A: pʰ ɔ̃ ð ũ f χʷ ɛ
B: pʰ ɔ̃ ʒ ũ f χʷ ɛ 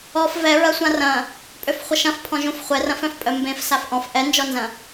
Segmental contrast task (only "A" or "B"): B